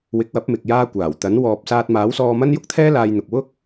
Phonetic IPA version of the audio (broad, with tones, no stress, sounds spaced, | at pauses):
w ɪ˨˥ k̚ w ɐ˨˥ p̚ m ɪ˨ k̚ j aː˧ kʷ aː˨˩ w t̪ ɐ˨˥ n w ɔː˨ p̚ s aː˧ t̚ m aː˨˥ w s ɔː˧ m ɐ˥ n j ʊ˥ k̚ t̪ʰ ɛː˥ l aː˧ j n̪ ʊ˨ k̚ w ʊ˥ k̚